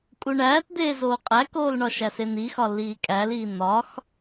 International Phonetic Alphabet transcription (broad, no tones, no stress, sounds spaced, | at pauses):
kʼ u ɳ æː t d̪ eː z oː qʼ æ k oː l ɳ ɒ ʃ æ s e n̪ i x ɒ lː iː kʼ æ l iː n̪ ɒ x